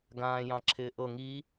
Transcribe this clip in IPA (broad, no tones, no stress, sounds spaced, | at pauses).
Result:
ɡ ãː j ɑ̃ ǁʰ ɪː ʔ ɤ ŋ i